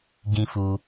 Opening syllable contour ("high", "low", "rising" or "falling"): high